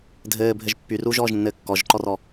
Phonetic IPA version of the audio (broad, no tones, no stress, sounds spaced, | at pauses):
dʱ ɘː bʱ ɘ ʒ pː y r uː ʒ ɔː ʒ nː ɘː kː ɔ ʒ ǃ ɔ r ɔ